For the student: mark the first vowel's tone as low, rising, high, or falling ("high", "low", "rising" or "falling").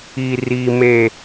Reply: high